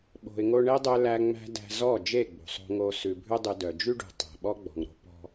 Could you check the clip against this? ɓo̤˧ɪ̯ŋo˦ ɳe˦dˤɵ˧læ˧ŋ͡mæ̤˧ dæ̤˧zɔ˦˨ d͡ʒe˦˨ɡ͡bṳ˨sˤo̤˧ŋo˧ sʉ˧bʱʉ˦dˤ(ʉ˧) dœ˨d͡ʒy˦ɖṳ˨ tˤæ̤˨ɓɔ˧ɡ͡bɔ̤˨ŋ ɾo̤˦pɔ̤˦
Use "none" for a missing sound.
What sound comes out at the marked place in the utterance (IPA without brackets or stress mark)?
ʉ˧